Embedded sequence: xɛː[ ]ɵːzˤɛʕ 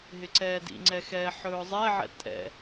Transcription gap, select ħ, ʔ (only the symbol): ħ